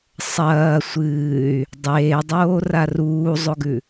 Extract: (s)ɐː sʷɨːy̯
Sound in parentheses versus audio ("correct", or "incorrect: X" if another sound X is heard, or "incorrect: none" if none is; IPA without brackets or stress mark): incorrect: sˤ